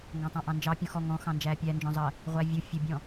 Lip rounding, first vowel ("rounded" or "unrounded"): unrounded